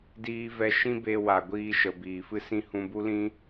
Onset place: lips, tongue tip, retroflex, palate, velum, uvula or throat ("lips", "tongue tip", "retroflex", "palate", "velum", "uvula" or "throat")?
tongue tip